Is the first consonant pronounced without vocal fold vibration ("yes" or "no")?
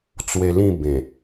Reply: yes